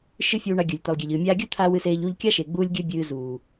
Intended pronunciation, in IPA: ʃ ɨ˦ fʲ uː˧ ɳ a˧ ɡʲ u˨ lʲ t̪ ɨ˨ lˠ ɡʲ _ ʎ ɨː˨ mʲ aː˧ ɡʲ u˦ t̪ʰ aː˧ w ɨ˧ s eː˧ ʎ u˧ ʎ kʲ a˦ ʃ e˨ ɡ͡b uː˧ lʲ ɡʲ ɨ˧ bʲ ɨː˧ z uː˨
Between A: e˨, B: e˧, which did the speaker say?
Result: A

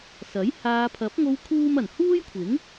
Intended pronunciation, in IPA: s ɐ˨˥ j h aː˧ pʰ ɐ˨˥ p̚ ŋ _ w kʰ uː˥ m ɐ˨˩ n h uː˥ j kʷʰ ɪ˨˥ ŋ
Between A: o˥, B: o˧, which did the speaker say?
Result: B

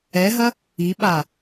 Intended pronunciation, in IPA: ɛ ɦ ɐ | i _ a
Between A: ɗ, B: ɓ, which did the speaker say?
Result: B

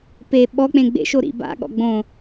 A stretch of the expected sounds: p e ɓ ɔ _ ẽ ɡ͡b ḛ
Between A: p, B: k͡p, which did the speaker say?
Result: B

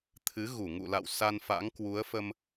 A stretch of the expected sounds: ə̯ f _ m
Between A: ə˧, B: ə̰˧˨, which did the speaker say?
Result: A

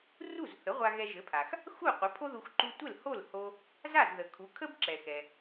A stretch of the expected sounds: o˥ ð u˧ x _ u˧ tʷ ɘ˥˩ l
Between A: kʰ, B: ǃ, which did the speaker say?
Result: B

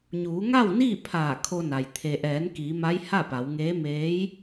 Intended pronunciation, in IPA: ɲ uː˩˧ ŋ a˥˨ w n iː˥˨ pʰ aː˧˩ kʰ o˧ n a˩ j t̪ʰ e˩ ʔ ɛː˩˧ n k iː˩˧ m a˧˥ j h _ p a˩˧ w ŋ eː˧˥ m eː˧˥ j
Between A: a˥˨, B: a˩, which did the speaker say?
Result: A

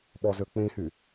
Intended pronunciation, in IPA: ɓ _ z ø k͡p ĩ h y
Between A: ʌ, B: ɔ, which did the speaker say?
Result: B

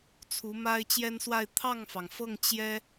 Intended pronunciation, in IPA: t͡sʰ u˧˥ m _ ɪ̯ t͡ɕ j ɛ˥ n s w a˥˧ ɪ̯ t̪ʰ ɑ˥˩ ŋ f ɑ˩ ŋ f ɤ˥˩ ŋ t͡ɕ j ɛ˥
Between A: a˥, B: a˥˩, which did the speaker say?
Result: A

